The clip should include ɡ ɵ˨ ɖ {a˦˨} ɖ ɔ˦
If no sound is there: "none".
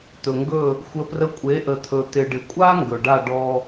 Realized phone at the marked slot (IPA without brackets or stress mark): a˦˨